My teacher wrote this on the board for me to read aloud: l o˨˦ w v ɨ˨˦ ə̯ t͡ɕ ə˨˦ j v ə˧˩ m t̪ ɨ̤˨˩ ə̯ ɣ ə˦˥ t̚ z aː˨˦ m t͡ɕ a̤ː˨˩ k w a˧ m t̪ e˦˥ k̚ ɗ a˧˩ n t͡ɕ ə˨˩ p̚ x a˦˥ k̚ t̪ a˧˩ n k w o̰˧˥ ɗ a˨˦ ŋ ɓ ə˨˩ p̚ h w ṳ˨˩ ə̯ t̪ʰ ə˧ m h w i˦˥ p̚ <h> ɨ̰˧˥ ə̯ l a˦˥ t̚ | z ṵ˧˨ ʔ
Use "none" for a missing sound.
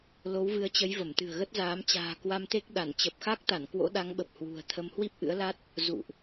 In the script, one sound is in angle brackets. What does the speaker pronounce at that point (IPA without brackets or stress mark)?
ʔ